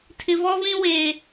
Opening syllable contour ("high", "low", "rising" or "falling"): low